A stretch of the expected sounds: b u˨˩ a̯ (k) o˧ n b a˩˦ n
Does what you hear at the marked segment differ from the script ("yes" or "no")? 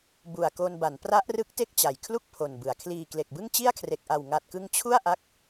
no